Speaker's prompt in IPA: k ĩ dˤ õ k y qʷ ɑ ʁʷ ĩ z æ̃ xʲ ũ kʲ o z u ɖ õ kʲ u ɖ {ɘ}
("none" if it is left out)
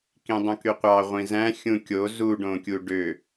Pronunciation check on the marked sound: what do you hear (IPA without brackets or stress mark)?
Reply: ø